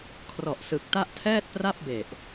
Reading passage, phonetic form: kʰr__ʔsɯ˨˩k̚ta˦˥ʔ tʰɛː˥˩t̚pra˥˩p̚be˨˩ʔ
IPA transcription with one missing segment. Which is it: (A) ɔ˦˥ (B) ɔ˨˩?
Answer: B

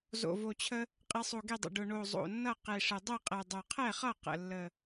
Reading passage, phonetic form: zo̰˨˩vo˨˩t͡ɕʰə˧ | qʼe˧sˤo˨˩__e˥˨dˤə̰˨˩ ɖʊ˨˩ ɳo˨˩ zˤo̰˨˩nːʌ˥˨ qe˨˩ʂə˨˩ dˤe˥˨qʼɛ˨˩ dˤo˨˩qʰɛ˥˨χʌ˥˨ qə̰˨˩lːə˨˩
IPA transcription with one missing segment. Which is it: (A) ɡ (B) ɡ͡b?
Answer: A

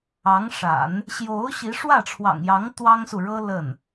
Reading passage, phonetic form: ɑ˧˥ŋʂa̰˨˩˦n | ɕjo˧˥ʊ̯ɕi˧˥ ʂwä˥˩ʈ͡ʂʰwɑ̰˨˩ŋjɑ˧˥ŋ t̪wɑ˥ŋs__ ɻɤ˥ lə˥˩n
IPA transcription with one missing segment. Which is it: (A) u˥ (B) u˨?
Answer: B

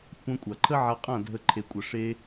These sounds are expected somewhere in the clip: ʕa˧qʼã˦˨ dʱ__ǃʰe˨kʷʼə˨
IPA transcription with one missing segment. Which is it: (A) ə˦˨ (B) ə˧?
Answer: B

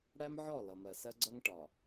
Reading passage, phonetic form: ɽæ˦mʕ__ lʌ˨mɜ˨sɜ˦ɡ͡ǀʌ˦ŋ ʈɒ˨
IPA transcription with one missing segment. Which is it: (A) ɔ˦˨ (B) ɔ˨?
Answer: A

